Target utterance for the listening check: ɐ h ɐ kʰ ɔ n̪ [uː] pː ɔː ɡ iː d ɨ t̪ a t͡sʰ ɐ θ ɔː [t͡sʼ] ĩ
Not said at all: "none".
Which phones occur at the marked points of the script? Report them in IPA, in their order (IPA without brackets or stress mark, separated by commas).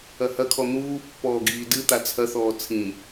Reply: uː, t͡sʰ